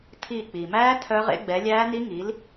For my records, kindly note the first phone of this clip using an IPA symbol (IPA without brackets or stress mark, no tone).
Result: tʰ